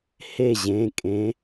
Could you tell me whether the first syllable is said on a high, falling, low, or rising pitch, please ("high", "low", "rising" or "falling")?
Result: falling